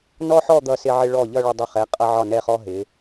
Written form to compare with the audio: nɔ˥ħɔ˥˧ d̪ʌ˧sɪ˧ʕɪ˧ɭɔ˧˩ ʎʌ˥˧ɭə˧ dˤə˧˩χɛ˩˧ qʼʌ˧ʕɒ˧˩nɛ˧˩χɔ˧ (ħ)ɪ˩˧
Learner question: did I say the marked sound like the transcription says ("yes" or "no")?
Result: no